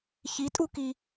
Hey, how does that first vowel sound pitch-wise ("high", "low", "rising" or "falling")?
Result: rising